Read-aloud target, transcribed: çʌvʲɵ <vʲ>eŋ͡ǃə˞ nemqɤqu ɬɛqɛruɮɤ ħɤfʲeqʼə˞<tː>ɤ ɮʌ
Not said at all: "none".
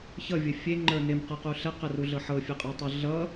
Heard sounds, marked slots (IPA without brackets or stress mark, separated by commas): fʲ, tˤ